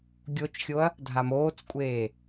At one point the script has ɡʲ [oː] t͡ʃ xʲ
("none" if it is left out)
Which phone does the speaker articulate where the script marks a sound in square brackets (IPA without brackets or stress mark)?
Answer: o